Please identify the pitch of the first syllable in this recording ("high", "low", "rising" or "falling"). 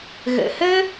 low